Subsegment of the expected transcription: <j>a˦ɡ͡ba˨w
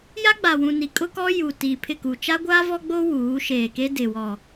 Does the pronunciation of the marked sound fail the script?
no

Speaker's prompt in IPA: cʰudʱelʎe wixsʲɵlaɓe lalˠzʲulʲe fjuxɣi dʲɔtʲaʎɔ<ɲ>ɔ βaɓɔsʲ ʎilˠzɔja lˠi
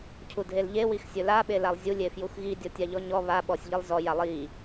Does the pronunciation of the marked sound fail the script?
no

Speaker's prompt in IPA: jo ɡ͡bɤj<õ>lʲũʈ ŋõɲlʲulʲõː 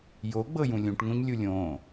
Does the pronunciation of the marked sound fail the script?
yes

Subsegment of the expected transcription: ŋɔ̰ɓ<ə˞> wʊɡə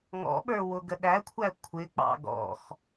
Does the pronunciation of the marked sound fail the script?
no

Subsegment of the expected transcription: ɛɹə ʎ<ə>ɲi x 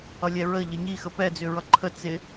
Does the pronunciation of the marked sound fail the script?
no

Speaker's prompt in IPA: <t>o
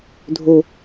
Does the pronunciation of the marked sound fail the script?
yes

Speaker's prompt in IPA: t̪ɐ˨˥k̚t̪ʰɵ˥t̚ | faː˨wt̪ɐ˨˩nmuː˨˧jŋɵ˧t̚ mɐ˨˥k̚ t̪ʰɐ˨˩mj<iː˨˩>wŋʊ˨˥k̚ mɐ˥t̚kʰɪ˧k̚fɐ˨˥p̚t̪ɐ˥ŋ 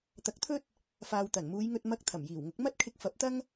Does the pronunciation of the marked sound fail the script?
no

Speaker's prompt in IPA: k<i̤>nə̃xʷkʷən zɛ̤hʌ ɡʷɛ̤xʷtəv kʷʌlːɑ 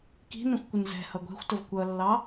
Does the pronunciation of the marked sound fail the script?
no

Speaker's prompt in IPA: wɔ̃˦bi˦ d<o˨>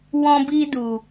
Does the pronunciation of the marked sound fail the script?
yes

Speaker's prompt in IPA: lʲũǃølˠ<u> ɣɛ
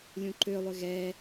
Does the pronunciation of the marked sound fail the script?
yes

